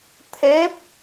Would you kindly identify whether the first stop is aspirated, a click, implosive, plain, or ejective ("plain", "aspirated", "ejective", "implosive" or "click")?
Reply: aspirated